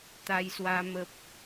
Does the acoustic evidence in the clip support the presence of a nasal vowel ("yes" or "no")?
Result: no